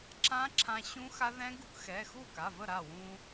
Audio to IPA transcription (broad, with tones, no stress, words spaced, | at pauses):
ǁã˦˥ǁʰã˧ ɕũ˦˥xa˦˥ ðɛ̃˦˥ ɡu˧kxɛ˩˧˩xu˥˩ka˩˧˩ və˥˩ɾa˥˩wũ˧